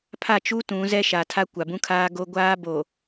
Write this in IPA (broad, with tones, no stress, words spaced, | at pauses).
pʰa˦˨t͡ʃu˦ tũ˨˦zɛ˦ʃa˨tʰa˦ kʷa˨bũ˦kʰaː˦ɡo˦ ɡʷaː˦ bo˨